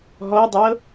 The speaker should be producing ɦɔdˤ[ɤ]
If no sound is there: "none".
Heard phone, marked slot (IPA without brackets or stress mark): ɤ